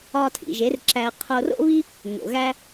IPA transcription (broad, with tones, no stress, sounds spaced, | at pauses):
ɒ˧ tʰ ḭ˨ ʒ e˨˦ r ǁ æ˧ ə̯ qʰ o˧ r o̰˦ β i˦ | ŋ o̰˨ ɣ æ˦